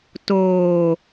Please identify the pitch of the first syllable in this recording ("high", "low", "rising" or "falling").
low